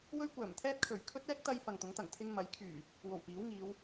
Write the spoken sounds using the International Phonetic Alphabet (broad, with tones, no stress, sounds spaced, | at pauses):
w ɵ˥ ɥ kʷ œː˨˩ m t̪ʰ ɛː˥ t̚ kʰ ɵ˨˩ ɥ kʰ ɵ˥ t̚ ɛː˥ k̚ t̪ ɐ˧ j f ɐ˨ ŋ t̪ ʊ˨˥ ŋ t̪ ɐ˨˩ ŋ t̪ʰ ɪ˧ ŋ m ɐ˨˥ j kʰ yː˨˩ | w o˨˩ w p iː˨˥ w ŋ iː˨˧ w